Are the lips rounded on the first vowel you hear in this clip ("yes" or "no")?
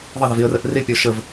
no